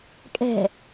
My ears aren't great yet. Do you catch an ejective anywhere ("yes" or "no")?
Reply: yes